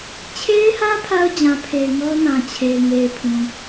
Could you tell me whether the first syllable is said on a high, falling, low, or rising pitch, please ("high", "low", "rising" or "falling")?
high